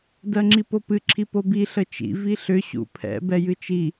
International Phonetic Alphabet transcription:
dɜŋ͡ǁipopɨ ǁʰipobi ɬət͡ʃḭ viɬʏ ɕṵpʰɛ̰ bɛjɨt͡ʃi

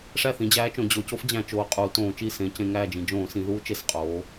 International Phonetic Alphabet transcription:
ʂæ˥˩θĩ˩˧d͡ʑæː˧˥t͡ʃõ˩˧ d͡ʑo˩˧co˧˥fd͡ʑæ̃˧˩˧ t͡ʃoː˩˧qʼuː˩˧ tõː˧˩˧t͡ʃi˥˩ sẽ˩˧ cẽ˩˧ŋæː˥˩d͡ʒĩ˩˧ d͡ʒõː˧˩˧sĩ˩˧ðuː˧˥ t͡ʃe˩˧s qʼoː˩˧

